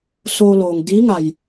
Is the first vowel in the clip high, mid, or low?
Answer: mid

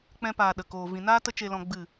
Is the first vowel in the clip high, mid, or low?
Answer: mid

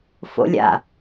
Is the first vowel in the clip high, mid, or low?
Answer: mid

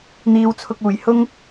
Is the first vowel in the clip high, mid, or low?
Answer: high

